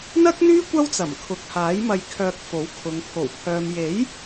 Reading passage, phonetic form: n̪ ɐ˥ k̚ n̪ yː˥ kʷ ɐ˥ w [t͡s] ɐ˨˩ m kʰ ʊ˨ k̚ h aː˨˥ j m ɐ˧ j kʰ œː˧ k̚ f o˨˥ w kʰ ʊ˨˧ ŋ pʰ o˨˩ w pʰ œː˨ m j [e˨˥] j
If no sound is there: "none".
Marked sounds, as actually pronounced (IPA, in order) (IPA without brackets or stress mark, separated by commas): t͡s, e˨˥